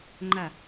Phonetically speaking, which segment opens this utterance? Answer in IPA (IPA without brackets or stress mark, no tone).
ŋ͡ǃ